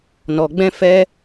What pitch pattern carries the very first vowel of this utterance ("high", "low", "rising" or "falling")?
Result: low